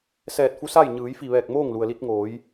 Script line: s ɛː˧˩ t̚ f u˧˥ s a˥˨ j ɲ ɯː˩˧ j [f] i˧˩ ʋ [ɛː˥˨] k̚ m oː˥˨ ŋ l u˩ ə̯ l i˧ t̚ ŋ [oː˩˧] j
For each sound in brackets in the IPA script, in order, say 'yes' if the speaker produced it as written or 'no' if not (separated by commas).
yes, no, yes